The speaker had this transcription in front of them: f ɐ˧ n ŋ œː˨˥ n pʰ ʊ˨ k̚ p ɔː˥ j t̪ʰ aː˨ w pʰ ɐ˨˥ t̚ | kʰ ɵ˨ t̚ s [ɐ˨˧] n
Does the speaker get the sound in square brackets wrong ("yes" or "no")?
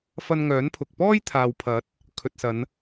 no